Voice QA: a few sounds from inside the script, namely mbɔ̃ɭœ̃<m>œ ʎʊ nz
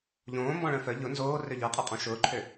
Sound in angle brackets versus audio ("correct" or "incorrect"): incorrect